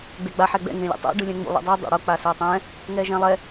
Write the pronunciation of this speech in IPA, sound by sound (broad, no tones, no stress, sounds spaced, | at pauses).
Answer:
ɡ͡b e ɡ͡b a ħ ɛ ɡ͡b ɛ̰ ŋ ẽ lʲ ṵ tˤ o̰ ɖ ɯ lʲ ɛ̃ ŋ͡m ṵ lˠ ɛ̰ dˤ ɯ dˤ ɛ̰ ɽ o k͡p a s o tˤ ɛ̃ | ŋ ɛ ʒ ɛ̃ lˠ ɛ